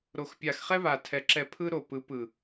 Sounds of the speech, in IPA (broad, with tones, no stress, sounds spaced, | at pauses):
ɾ o˨ x pʲ a˨ x χ ɛ˦ β a˨ tʰ ɛ˨ ǁ ɛ˧ pʰ ɯ˦ ɾ o˨ p ɯ˨˦ p ɯ˨